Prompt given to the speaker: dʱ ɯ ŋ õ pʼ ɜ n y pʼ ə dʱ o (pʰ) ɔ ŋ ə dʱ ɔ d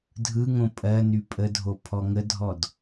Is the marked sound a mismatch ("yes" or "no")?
no